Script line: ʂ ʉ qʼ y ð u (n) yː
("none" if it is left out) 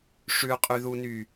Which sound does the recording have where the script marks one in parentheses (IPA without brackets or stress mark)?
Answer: n